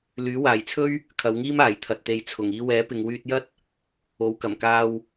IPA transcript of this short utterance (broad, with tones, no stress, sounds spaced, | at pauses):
l yː˨˥ w aː˨ j t͡sʰ ɵ˥ ɥ | kʰ ɐ˨˧ w ŋ iː˥ m aː˨ j t̪ʰ ɐ˧ t̚ t̪ e˧ j t͡sʰ ʊ˨˩ ŋ iː˧ w ɛː˨˥ p ɪ˨ ŋ w yː˧ t̚ j ɐ˥ t̚ | o˨˥ w k ɐ˨˩ m k aː˧ w